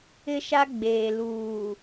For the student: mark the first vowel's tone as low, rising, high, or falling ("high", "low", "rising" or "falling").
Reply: high